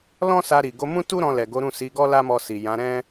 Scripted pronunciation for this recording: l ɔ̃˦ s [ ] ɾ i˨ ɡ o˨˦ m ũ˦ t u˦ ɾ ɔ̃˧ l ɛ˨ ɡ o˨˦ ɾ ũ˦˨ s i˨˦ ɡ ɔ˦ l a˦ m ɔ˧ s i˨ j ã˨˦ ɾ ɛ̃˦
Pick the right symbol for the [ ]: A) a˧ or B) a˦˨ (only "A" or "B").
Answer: A